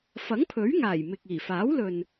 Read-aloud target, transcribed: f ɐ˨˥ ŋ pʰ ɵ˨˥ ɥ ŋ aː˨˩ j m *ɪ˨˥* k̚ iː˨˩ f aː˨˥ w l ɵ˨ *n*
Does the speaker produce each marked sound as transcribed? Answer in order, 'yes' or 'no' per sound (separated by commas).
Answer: no, yes